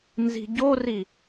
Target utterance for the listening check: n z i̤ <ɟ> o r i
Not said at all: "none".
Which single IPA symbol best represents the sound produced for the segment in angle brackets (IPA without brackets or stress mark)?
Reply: ɟ